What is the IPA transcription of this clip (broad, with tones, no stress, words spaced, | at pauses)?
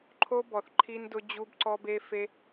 ǃʰo˦bɔ˨θ ǃʰi˦ndʊ˦ d͡ʑu˦bǀɔ˦be˦fe˦